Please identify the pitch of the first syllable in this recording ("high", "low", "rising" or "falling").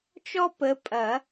high